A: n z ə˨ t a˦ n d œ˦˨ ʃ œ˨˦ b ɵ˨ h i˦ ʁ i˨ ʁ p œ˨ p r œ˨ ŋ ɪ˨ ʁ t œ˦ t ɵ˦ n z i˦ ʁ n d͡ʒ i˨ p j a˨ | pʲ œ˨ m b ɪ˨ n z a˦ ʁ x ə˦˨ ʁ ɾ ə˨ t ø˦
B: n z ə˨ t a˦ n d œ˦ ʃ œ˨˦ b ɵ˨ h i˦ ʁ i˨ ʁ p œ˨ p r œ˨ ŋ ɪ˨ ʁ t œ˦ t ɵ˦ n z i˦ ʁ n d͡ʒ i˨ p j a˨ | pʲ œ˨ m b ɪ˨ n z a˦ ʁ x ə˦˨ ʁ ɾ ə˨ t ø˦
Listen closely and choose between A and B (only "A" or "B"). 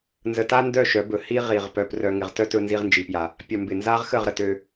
A